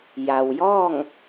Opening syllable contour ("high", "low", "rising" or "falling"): low